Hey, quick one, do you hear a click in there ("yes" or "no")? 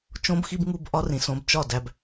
no